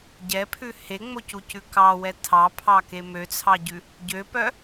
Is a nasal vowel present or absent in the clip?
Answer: absent